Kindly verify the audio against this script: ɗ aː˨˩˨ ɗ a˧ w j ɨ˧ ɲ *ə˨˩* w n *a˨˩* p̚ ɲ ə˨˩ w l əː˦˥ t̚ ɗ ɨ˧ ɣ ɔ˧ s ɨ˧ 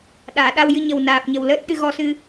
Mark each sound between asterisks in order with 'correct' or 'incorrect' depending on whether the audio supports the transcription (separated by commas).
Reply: correct, incorrect